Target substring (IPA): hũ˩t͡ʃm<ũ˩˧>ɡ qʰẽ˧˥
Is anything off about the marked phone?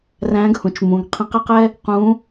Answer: no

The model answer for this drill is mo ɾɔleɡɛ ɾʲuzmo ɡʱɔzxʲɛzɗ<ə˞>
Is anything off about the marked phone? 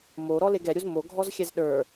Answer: no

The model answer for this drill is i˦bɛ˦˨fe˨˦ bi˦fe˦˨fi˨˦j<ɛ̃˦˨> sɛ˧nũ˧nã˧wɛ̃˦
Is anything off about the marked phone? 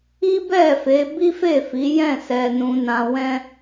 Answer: no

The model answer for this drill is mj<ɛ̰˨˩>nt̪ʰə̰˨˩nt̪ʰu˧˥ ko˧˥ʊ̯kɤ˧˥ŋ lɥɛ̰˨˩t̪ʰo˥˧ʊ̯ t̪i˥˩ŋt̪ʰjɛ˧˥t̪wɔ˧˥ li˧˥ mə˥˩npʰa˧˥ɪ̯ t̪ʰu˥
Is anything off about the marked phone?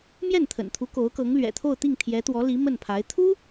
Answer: yes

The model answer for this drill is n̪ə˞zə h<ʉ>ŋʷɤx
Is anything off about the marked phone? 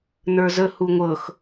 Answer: yes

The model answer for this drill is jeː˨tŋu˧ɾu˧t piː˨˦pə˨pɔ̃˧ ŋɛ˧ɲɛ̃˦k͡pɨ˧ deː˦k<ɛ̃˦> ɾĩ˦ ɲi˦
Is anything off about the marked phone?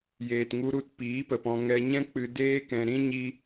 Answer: yes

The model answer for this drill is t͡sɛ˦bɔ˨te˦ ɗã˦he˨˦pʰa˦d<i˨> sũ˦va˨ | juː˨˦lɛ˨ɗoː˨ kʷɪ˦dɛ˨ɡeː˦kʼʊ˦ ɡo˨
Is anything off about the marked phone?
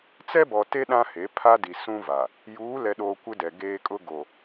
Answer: no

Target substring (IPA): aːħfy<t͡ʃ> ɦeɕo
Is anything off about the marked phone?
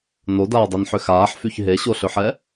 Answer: yes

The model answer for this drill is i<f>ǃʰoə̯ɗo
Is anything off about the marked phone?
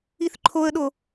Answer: yes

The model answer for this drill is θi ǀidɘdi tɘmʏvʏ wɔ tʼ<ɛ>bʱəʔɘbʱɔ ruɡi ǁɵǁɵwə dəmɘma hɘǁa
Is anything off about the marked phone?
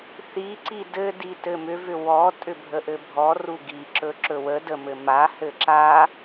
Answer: yes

